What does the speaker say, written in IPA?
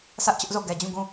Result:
s ä˦ ʔ t͡ɕ ʊ˦ ʔ z o˦˨ ɡ ɛ˨ d͡ʑ ũ˦˨ ɡ ũ˦˨

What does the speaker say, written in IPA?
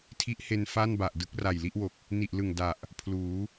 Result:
tʰ i˦˥ ʔ h e˧ n f a˥˩ n b a˨˩ ʔ d ɯ˦˥ k̚ r a˨˩ j l i˥˩ ʔ w o˨˩ k̚ | n i˨˩ ʔ l ɯ˨˩ ŋ d a˨˩ ʔ | pʰ l uː˩˦

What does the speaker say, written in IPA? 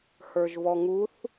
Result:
h ə˞ ʒ v ɔ ŋ u θ

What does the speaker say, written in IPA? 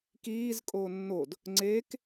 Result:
k iː z kʼ oː nː o d | ŋ͡ǀ e k

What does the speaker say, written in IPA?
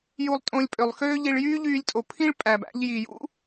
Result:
j u˧ lˠ tʼ õ˧ lʲ pʼ ø˩ lˠ x øː˥ ʎ i˧ ɭ j yː˥ ʎ yː˧ lʲ tʼ o˩ pʰ ĩ˥ ɭ pʼ æ˩ b æ̰˧ ʎ j i˩ j ṵ˥

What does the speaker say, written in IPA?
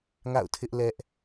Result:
ŋ a̰˦˨ ʊ̯ tʰ ɪ˦ ʔ l ɛ˦ ʔ

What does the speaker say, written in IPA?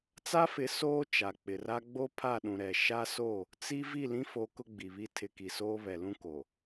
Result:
t͡s a˦ f ɪ˨˦ s oː˦ t͡ʃ a˨ k͡p ɪ˨ r a˦ ɡ͡b o˦ pʰ a˦˨ ɗ ũ˨ ɾ ɛ˨ ʃ a˦ s o˦˨ | t͡s i˦ v i˦˨ l ĩ˦ f o˨˦ k ʊ˦ ɡ͡b i˨ β i˦ tʰ ɪ˨˦ k i˨ s oː˦ β ɛ˨ l ũ˦ k o˨

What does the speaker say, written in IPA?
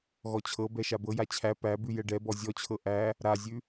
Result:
ɣ ɔ t͡ɕʰ ɤ b ɛ ʃ a b ɤ j a t͡ɕʰ æ p æ b ʉ j ɛ ɖ ɛ b ɔ zʲ ɔ t͡ɕʰ ɤ ʔ æ | ɾ a zʲ ʉ

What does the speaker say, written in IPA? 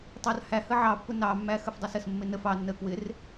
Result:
tˤ ɑ r h æ h ə ʕ ɑ pː ʊ n ɑ mː æ x ə f dˤ æ s ə s mː ɪ n ə f ɑ nː ə k w ɪ r

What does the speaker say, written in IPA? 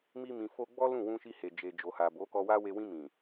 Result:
m i˧ m ĩ˨ f o˧ ɡ͡b ɔ˦ l ũ˦˨ w ũ˧ ʃ i˧ h e˨ d͡ʒ e˨ d͡ʒ o˨ h a˨ b o˨˦ k ɔ˧ w a˦ w e˧ w ĩ˧ m ĩ˨

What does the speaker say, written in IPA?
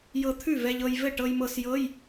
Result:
j ɤ˧ t̪ʰ ʉ˥˩ v ɛ˧ ʎ ɤ˧ j v ɘ˥˩ ʈ ɤ˧ j m ɤ˧ s j ɤ˧˥˧ j

